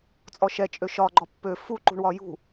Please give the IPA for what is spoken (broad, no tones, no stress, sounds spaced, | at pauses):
t͡sʼ ɔ ʃ ɛ t͡ʃʼ ø ʃ ɒ ɡ͡ǃ ɔ pː ø f u ǃ ṳ ɳ w ɒ j ṳ